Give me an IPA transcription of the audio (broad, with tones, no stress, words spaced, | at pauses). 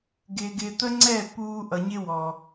ɡɪː˨ɡɪː˨t̪ə˦ŋ͡ǀɛ˦˨ puː˦ ʔʌ˨ɲɪ˦ wɔ˨